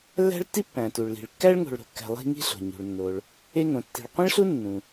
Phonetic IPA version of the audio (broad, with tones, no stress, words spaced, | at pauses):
lːæ̤˥ɭtːi˥ pːæ̃˩tu˩ɭ li̤˩ɭkːæ˥ɭŋo̤˨ɭ ɾo̤˨kːæ̤˨ lˠi̤˦ ŋi̤˥ɬo̤˩ ɲṳ˩ɭnːo˩ɭ | e˦ŋõ˩tːi̤˨ɭ qʷĩ˥ɭɬu˥ nːũ˩